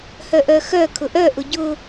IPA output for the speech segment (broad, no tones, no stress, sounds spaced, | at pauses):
h œ ʔ œ x œ kʰ ʊ ʔ œ ʔ ʊ ɟ ʊ